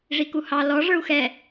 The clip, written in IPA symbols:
ʐ i k u h ɑ l ɔ ʐ ə˞ u̯ x ɛ

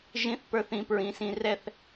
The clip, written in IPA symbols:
ʒ ĩ˦˥ θ p ə˞˦˥ θ ĩ˨˥ p ɹ ĩ˨˥ s ĩ˧ r ɛ˥˧ θ

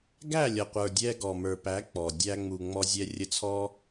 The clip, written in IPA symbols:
ɡ æ˦˨ lʲ ʌ˨ qʷ ə˞˨ dʲ ɛ˧ ɡ ɔ˨ m ə˞˨ p æ˨˦ k͡p ɔ˨ dʲ æ˧ ŋ͡m u˨ ŋ͡m ɔ˧ zʲ ɛ˧ rʲ ə˧ t͡sʰ ɔ˦

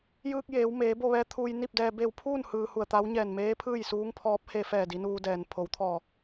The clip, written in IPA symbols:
j ɯː˧ k̚ j eː˩˧ w m eː˩˧ b o˥˨ ʋ ɛː˧ t̪ʰ uː˧ j n i˥˨ p̚ d ɛː˧ b e˧˩ w pʰ uː˥˨ n h ɯː˧ h u˧˩ ə̯ t̪ a˧˥ w ɲ ɛː˧˩ n m eː˧˥ pʰ ɯː˥˨ j s uː˧˥ ŋ pʰ ɔː˧˥ p̚ h e˧ f ɛː˧˩ d i˩˧ n uː˧ d ɛː˩ n pʰ o˩˧ w t̪ʰ ɔː˧˩

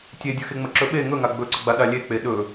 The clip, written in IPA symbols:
tʲ e dʲ ɵ x e ŋ͡m ə ǁ ɵ ɓ e ŋ ɵ ŋ a ɡ͡b ɵ ǀ ə ɡ͡b a ɗ a lʲ e k͡p e ɗ ɵ

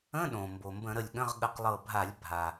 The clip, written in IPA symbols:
ə̃˧˥˧ ɗ õ˩ m b o˩ m b ə̃˧˩˧ ɾ ə˧˩ lʲ ɠ ə̃˧˥˧ ʁ ɠ ə˧˩ q lˠ ɤ˧˩ bʱ a˧˩˧ lʲ bʱ a˩

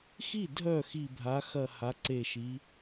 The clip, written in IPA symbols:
x i˥˩ dʱ œ˥˩ x i˨˩ bʱ a˩˧ x ɐ˨˩ h a˩˧ ǀ e˨˩ ʃ i˩˧

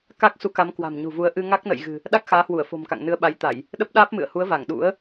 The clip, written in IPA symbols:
k a˦˥ k̚ s u˨˦ k a˨˦ m k w a̤˨˩ m ɲ ṳ˨˩ v u˨˦ ə̯ ʔ ɨ˧ ŋ a˦˥ k̚ n ə̰˧˨ j ɣ ɨ̤˨˩ | ɗ a˦˥ k̚ x aː˨˦ h w u˧˩ ə̯ f o̤˨˩ m k a̰˧˨ ŋ n ɨ˨˦ ə̯ ɓ a˨˦ j t̪ a˧˩˨ j | ɗ ə˦˥ p̚ ɗ aː˦˥ p̚ m ɨ̰˧˨ ə̯ h u˨˦ ə̯ v a˧˩ ŋ ɗ ṵ˧˥ ə̯

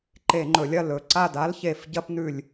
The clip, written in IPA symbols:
ǃ e˧˩˧ ŋ͡ǃ ɵ˩˧ lʲ ɐ˦˨ l ɵ˩˧ ǀ a˦˨ d a˦˥ l ç e˧˩˧ f ɟ ɐ˦˥ p n ʉ˦˨ lʲ

